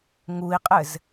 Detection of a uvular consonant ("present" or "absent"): present